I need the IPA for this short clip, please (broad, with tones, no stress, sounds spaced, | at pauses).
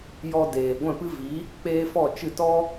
j ɔ˧ d eː˨ ɡʷ ɛ̃˦˨ p ɨ˦ v i˨˦ | k͡p eː˦ f ɔ˦˨ t͡ʃ ɨ˦˨ t ɔ˦